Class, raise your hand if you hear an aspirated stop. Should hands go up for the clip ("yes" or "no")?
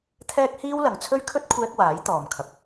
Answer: yes